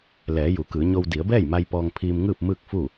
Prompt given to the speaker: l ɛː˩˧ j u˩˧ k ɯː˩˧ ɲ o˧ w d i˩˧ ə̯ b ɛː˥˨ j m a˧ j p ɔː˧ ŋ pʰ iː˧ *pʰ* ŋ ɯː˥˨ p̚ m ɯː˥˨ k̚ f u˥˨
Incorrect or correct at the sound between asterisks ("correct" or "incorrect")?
incorrect